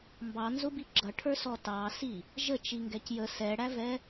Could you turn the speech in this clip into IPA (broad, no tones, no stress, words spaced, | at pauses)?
mbɑnzʊbi ɡ͡ǁʌʈʰə˞sɔ tɑsi | ʒət͡ʃiŋɡɛc jə sɛɽævɛ